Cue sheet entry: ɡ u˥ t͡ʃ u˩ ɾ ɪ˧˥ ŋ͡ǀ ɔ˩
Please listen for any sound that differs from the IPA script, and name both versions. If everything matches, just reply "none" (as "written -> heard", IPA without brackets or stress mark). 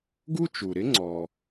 none